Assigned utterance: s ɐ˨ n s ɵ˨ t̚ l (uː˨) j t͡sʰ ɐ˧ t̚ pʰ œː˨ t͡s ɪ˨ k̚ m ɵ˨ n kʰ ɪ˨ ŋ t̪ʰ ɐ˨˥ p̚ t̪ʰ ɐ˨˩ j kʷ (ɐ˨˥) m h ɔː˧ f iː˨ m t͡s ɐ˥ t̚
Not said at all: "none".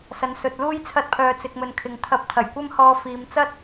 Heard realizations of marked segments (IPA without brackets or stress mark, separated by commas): uː˥, ɐ˥